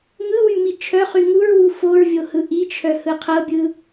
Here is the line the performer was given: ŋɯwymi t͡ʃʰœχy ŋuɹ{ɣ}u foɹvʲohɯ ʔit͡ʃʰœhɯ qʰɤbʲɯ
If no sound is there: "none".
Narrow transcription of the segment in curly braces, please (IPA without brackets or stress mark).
w